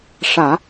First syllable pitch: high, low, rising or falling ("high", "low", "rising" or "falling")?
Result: low